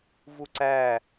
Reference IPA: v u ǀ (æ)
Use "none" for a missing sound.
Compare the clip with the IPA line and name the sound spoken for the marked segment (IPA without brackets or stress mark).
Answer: æ